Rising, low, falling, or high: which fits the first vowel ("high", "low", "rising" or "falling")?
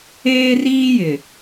high